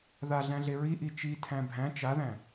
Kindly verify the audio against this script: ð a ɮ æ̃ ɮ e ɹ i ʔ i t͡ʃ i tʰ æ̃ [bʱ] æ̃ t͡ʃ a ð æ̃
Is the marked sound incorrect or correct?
correct